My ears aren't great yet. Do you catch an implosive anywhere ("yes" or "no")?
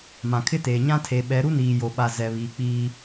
yes